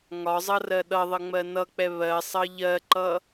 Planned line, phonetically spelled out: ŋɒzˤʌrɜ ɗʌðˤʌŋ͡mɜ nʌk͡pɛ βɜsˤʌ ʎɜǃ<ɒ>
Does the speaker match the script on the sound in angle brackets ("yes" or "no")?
no